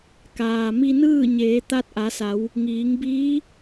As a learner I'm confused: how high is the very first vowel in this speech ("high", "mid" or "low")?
low